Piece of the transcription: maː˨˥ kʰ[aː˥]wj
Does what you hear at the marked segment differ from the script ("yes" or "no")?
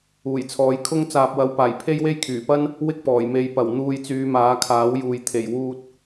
yes